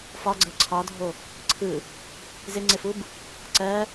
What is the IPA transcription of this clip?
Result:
f ɒ ɡ͡ǀ ɜ ǀʰ ɒ dʱ o | ǀʰ ɯ | z ɪ ŋ͡ǀ ɪ f u b | ǀ ɜ

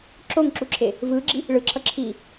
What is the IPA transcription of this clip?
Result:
ǁ o ŋ ǁ u ǁʰ e | v ɯː ɡ͡ǁ i | ɭ ɯ ǁʰ ʌ ǁʰ iː

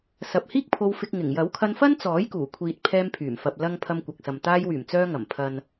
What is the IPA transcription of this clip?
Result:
s ɐ˨ p̚ h iː˥ k̚ pʰ o˧ w f ɪ˧ k̚ ŋ ɪ˨˩ ŋ j ɐ˨˥ w kʰ ɐ˧ n f ɐ˥ n t͡s ɔː˨˥ j k uː˨˩ kʷʰ iː˨ t̚ pʰ ɛː˧ m pʰ yː˨˩ m f ɐ˨ p̚ l ɐ˧ ŋ pʰ ɐ˧ m kʷ ɐ˨ k̚ s ɐ˨ m t̪ aː˧ j w yː˨˩ m t͡s œː˧ ŋ ɐ˨˩ m pʰ ɐ˨ n

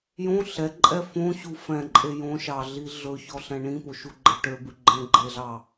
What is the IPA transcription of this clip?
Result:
j õ ɬ ɛ ǃʼ ɛ f õ ɕ u f ɛ̃ ǃʼ e j õ ʃ ɑ ɮ i ɮ ɵ ç ɔ ɬ ɛ̃ ɳ ĩ p o ʃ u ɡ͡ǃ ɛ ʈ ø b ʉ ɡ͡ǃ ɛ̃ ɡ͡ǃ e ɮ ɑ

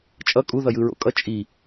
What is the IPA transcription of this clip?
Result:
t͡ʃʼ ʌ kʼ u ð ʌ j ɯ ɹ o̰ kʼ ʌ t͡ʃʼ i

